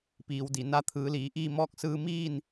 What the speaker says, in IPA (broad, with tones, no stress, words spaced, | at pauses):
piː˩˧wdi˩ na˧˥t̪ʰɯː˩˧liː˩˧ʔiː˥˨ mɔː˧˥k̚sɯː˧ miː˥˨n